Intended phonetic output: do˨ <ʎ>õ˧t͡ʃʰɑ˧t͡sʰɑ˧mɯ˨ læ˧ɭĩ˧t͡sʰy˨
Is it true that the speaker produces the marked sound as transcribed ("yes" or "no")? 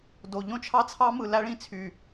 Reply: yes